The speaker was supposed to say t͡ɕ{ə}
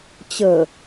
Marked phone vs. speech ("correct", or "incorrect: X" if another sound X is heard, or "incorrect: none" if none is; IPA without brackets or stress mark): correct